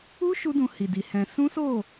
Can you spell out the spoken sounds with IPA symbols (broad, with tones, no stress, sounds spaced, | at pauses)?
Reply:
u˦ ʃ u˦ d ũ˧ h i˨ d i˨ h ɛ̃˧ s ũ˦ s o˦˨